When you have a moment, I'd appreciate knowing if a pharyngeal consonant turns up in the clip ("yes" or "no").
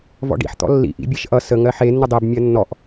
yes